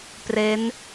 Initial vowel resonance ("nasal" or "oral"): oral